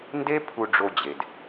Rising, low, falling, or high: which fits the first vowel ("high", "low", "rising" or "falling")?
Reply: high